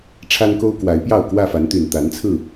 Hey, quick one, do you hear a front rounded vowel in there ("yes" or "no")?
yes